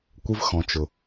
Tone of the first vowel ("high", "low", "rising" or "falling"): high